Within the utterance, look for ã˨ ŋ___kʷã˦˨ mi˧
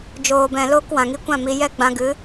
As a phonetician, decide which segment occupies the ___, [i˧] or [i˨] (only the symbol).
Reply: i˧